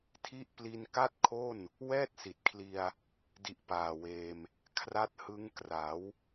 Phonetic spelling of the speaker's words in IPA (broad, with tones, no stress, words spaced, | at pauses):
tʰi˦˥ʔpli˧n ka˥˩t̚kʰo˥˩n | wɛː˥˩t̚si˨˩t̚kʰli˧a̯ | di˨˩ʔ paː˨˩weː˧m | kʰra˦˥t̚hɯ˦˥ŋ kra˩˦w